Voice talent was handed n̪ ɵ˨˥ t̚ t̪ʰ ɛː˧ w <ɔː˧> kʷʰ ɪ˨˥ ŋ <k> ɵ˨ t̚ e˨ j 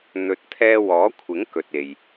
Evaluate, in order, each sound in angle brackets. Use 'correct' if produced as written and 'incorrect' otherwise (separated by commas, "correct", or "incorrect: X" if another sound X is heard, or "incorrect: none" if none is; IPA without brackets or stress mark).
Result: incorrect: ɔː˨˥, correct